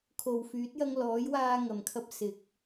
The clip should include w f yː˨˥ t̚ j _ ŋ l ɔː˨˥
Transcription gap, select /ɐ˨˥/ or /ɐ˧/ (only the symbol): ɐ˧